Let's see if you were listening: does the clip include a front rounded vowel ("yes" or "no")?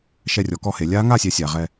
no